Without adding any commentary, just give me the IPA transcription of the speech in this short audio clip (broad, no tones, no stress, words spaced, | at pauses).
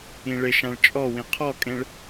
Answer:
ĩɭɪʃãɭ t͡ʃʼɔwĩ qʰɔkʼẽɭ